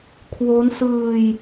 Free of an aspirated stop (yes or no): no